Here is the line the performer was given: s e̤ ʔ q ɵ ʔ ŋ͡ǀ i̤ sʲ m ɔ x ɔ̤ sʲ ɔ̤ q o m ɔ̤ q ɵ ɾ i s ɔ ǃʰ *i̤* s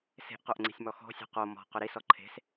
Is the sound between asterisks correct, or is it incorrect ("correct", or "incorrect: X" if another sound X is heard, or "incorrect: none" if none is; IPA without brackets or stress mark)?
incorrect: e̤